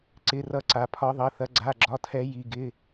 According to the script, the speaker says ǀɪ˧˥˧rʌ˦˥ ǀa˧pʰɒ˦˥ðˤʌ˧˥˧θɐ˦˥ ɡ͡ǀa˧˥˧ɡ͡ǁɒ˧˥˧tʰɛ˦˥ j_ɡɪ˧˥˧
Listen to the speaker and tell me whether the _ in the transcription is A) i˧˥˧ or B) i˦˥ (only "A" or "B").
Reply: A